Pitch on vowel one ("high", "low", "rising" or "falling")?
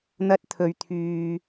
high